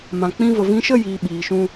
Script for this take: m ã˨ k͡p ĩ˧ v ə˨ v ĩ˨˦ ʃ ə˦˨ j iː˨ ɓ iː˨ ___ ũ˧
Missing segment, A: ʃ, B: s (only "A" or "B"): A